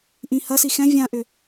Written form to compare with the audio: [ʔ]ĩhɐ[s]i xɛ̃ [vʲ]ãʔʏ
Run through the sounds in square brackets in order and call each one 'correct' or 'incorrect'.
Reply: correct, correct, correct

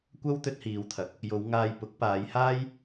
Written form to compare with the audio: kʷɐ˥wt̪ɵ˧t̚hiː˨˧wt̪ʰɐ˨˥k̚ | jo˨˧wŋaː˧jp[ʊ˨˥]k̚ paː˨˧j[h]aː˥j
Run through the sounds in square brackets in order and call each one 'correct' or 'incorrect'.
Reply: correct, correct

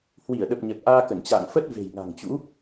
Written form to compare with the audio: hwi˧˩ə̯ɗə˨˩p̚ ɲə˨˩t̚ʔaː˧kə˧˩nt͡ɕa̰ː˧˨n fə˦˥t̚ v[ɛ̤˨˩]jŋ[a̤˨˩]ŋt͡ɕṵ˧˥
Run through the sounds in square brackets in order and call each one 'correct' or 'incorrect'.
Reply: incorrect: e̤˨˩, correct

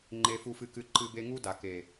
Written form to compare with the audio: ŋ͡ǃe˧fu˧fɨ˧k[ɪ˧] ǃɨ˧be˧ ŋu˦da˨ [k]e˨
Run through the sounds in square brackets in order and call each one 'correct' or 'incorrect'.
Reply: incorrect: ɨ˧, correct

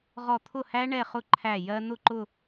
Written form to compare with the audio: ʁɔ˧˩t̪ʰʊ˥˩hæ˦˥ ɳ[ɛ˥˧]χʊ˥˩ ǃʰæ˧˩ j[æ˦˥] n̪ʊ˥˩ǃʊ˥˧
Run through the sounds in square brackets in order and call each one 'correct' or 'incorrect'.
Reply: correct, incorrect: ɜ˦˥

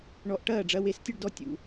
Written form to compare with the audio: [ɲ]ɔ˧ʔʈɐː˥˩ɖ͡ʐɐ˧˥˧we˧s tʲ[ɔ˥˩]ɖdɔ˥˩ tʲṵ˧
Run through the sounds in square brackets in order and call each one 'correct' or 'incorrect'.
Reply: incorrect: ɳ, incorrect: ə˥˩

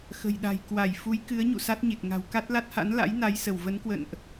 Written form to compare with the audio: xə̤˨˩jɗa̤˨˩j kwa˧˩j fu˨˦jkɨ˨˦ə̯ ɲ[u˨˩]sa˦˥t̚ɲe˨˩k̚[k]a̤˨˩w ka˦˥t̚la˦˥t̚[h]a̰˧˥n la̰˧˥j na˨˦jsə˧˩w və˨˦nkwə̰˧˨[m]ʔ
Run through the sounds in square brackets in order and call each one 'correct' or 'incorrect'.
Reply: incorrect: ṵ˧˨, incorrect: ŋ, correct, incorrect: n

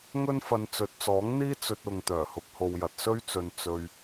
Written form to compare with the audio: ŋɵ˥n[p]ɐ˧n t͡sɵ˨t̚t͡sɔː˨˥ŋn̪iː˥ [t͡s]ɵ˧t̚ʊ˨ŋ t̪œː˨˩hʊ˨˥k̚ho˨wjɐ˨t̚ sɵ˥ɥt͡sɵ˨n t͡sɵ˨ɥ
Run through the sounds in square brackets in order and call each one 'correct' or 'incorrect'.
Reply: incorrect: f, correct

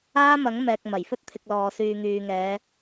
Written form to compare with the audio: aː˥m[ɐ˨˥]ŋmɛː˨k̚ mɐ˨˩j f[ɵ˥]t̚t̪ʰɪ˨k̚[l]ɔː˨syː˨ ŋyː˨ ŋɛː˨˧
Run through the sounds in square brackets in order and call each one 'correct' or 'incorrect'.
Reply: correct, correct, correct

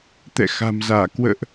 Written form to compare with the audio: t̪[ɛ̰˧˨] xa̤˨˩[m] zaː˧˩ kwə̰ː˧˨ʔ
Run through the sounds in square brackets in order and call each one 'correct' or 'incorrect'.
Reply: correct, correct

